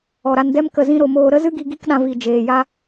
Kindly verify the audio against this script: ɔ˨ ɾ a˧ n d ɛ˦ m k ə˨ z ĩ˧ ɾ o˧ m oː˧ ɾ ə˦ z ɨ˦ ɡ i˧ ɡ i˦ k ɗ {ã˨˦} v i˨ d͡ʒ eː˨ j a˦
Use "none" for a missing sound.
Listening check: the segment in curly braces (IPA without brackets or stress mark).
ã˧